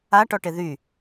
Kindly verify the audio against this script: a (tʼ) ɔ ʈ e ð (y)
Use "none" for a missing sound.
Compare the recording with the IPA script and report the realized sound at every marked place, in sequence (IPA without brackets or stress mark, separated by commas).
ʈ, y